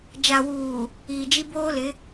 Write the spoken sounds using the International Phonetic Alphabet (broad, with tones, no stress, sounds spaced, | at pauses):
d͡ʒ a˨ w uː˨ | iː˨ d͡ʒ i˦ b oː˦ l ɪ˨˦